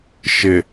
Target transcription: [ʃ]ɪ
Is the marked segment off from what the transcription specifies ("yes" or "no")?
no